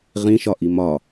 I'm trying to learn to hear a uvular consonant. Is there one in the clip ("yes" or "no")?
yes